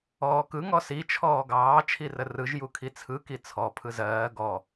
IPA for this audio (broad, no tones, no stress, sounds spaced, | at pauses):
ɔː k ɯ ŋ ɔ s i t͡ʃʰ ɔː ɡ ɑː t͡ʃʰ i r ə r ɯ ʒ j u kʰ i t͡sʰ ɯ k i t͡sʰ ɔ pʰ ɯ z ɜː ɡ ɔ